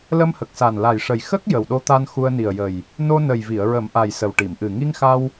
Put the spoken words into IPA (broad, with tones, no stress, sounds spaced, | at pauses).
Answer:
l ə˧ m h ə˨˩ k̚ s a˨˩ n l a˨˩ j ʂ ə˨˩ j x ə˦˥ k̚ j ə˨˩ w ɗ o˧ t̪ a˧ n x u˧ ə̯ n i˨˩ ə̯ j ə˨˩ j | n o˧ n ə˨˩ j v i˨˩˨ ə̯ ɹ ə˨˩˦ m ʔ a˨˩ j s ə˨˩ w ʈ i˨˩˨ m ʔ ɨ˨˩ ŋ i˧ ŋ x a˧ w